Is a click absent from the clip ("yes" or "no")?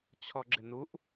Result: no